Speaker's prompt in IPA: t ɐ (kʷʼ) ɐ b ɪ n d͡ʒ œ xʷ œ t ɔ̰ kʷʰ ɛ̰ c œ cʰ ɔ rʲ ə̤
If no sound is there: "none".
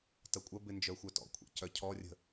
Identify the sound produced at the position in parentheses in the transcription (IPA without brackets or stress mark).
kʷʼ